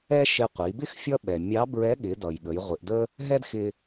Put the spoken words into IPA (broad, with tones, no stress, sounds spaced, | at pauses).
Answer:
ɛ˥ ʃ ɪ˧ qʷ i˩˧ b ɪ˥ x fʲ ʌ˥ ɓ ɛ˩ mʲ ɑ˧˥ b ɹ ɛ˧˥ ɠ ɪ˩˧ d ʌ˩ j ɠ ə˩˧ j ʁʷ ɪ˩˧ ʔ d ə˥ | ɦ ɛ˥ d x ɪ˧